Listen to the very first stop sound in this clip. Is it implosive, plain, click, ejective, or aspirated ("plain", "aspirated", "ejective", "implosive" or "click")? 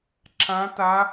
click